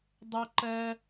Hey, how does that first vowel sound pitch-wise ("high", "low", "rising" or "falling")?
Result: high